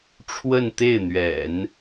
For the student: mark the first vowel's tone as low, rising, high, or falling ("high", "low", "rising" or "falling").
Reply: falling